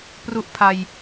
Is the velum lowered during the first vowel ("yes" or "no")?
no